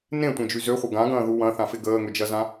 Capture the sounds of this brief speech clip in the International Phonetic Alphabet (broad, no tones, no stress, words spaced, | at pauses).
nẽtʷẽd͡ʒy zøχʷə ɡãɡɐ̃ː ðu wɐ̃θãfɪ ɡəːŋød͡ʒɐzã